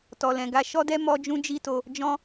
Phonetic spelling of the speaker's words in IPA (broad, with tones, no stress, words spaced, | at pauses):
tɔ˧lɛ̃˧ɡa˦ ʃɔ˦dɛ˦ mɔ˦d͡ʒũ˦d͡ʒi˦to˧ | d͡ʒɔ̃˦